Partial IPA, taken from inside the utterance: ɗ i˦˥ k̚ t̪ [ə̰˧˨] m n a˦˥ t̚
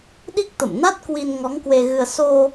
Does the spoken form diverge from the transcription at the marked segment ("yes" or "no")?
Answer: no